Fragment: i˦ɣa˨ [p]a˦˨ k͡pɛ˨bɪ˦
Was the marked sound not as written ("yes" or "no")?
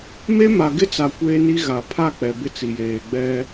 yes